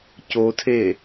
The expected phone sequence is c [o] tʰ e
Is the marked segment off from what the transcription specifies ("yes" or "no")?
no